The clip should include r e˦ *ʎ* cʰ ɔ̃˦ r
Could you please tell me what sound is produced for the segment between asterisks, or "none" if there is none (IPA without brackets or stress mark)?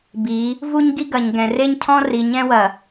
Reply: ɲ